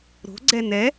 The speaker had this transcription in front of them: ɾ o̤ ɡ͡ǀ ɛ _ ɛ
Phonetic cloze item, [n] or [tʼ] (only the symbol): n